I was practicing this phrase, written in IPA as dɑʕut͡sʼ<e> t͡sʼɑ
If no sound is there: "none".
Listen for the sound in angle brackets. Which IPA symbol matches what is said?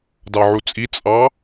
i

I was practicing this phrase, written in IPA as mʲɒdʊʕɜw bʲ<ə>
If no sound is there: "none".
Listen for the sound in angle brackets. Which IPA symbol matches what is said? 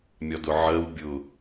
ʊ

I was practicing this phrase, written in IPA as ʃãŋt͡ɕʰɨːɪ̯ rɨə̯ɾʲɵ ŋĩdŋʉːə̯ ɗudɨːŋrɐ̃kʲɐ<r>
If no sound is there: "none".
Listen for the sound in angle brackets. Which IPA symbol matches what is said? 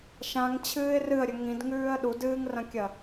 none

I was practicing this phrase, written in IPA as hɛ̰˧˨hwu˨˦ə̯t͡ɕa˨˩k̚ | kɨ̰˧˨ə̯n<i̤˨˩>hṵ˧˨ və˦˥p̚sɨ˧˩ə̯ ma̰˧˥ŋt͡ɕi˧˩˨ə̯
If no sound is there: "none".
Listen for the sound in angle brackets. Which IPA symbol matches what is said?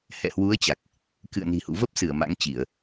i̤˨˩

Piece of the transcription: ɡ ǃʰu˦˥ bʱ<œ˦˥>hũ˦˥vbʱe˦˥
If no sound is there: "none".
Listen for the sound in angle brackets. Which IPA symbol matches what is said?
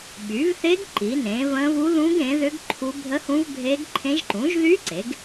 ə˦˥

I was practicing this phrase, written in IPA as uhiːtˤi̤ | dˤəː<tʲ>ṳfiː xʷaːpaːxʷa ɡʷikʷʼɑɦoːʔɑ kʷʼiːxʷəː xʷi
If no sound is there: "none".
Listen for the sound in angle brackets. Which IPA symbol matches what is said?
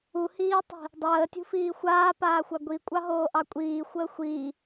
tʲ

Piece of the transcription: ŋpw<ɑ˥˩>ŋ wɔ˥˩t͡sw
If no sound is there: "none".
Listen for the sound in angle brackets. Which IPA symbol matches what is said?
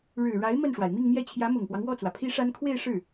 ɑ˦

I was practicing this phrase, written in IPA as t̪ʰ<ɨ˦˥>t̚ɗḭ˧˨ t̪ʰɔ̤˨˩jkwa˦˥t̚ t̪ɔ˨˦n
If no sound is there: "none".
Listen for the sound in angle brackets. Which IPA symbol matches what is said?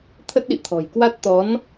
ə˦˥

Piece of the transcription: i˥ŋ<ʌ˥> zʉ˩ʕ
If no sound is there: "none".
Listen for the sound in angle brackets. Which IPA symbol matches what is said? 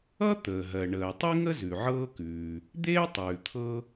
ə˥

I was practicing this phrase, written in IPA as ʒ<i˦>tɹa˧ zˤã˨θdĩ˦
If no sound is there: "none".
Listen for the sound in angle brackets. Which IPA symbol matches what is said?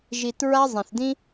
i˨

